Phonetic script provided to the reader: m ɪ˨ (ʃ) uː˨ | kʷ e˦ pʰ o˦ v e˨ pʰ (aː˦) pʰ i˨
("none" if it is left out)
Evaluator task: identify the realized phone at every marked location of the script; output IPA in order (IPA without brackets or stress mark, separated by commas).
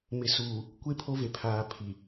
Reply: s, aː˨